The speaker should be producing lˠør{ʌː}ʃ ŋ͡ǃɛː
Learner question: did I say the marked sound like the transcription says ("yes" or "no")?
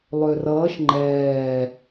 yes